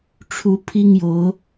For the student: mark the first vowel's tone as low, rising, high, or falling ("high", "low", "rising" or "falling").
rising